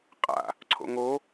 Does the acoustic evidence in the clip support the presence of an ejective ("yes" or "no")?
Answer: yes